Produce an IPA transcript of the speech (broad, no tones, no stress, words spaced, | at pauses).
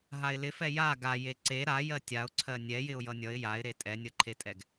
ɦaɪ̯lɪfɛ ja ɡa jeǀe ɾa jɜtʲaʊ̯ǀʰɜ nʲɛ jɪʊ̯jʌnʲʌɪ̯ jaɪ̯ɾe tʼɛnʲʌǃʰetʼɛɡ